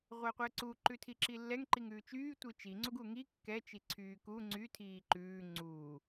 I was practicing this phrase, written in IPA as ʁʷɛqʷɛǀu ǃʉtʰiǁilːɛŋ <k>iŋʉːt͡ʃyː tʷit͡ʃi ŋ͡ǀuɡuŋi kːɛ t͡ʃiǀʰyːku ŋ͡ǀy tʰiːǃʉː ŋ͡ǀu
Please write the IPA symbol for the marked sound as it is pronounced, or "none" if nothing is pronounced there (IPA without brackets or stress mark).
ǃ